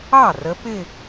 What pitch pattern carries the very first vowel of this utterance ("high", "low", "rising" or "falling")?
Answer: falling